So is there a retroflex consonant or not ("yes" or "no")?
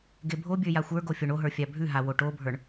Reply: yes